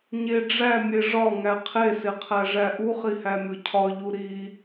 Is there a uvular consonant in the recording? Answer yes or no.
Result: yes